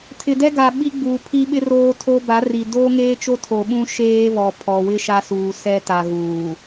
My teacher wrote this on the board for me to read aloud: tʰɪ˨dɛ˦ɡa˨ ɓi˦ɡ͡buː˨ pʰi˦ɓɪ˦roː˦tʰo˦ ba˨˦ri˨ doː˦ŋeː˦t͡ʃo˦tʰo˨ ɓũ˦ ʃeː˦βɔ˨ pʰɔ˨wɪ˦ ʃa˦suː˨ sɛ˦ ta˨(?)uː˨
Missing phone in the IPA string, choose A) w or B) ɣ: B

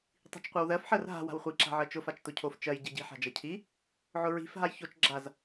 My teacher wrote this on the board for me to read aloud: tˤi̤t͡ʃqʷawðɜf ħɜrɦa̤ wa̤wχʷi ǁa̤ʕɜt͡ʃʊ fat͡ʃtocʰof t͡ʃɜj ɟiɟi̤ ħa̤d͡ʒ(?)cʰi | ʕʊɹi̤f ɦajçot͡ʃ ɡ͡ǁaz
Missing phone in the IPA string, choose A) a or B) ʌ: B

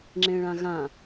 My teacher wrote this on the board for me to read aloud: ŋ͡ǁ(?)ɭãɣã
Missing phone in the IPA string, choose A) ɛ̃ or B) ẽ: B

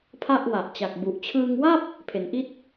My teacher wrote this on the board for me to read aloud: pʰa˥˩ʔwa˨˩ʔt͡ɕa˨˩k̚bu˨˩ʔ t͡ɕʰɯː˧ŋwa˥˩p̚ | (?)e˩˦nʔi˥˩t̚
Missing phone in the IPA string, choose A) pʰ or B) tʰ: A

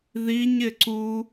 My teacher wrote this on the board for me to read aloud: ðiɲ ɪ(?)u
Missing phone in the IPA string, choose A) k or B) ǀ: B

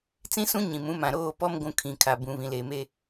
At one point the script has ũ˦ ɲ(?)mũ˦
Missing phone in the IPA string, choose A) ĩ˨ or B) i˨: A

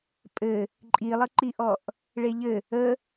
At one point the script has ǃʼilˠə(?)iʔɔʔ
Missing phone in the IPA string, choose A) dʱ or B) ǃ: B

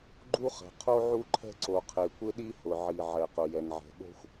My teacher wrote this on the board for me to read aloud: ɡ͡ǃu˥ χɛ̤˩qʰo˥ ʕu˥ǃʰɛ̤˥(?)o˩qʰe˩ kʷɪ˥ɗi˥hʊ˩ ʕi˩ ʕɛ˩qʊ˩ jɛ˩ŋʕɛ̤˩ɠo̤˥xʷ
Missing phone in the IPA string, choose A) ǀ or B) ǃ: A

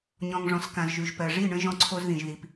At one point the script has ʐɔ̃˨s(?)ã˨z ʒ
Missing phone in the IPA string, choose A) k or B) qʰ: A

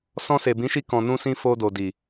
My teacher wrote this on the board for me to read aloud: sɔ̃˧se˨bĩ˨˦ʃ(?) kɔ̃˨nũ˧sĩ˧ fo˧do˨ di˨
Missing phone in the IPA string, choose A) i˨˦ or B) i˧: B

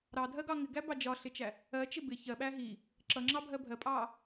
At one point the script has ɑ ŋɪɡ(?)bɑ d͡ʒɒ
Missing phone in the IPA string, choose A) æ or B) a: A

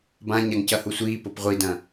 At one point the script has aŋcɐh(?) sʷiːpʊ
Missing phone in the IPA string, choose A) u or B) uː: A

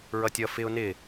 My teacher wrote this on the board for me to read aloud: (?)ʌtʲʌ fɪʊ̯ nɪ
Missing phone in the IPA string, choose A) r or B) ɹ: B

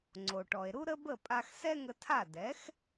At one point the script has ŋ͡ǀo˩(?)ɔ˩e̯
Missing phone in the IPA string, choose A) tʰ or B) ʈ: B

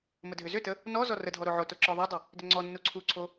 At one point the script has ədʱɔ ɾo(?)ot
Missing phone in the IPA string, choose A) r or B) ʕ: B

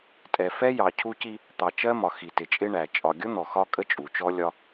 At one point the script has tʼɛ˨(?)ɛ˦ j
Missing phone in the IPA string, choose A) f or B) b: A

